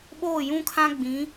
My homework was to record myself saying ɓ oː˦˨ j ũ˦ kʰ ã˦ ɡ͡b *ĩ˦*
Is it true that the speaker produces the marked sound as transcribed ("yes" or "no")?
no